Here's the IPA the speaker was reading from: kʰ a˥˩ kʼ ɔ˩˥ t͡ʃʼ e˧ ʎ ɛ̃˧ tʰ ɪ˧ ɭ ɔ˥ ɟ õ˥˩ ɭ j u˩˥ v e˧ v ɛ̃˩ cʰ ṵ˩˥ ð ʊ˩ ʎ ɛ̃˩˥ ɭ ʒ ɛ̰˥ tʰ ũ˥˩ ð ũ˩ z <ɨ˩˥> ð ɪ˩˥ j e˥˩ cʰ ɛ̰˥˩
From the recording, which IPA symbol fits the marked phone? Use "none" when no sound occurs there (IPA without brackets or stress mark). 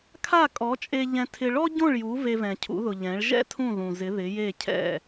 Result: ɪ˩˥